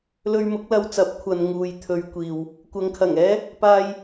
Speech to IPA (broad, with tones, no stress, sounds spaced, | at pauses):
l ɵ˧ ɥ m ʊ˨˥ k̚ l ɐ˧ w t͡s ɐ˨˥ p̚ kʷʰ ɐ˨ n ŋ uː˨ j t̪ʰ ɵ˨˧ ɥ kʷ iː˨ w | kʷ ɐ˨ ŋ kʰ ɐ˨˩ ŋ ɛː˥ | p aː˧ j